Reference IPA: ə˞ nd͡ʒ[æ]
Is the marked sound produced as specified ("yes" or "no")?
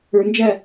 yes